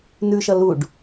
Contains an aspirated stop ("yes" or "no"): no